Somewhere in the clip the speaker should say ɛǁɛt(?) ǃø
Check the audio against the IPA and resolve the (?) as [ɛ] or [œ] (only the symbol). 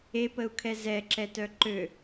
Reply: œ